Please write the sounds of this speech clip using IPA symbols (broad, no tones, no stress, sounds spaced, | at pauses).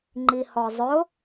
ŋ͡ǃ i h ɔ zˤ ʊ